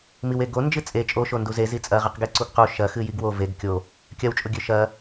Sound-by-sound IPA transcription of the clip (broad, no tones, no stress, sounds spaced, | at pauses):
m i w e ɡ o n d͡ʒ ɨ t͡sʼ e t͡ʃʼ o ʃ o n d u z e z i t͡sʼ ɐ ʁ ɨ q ɡ e ǀ u ɡ q u ʃ ɐ x ɨ j i ɡ w o v e ɡ kʲ o | kʲ ɐ w t͡ʃʼ o ɡʲ ʉ ʃ ɐ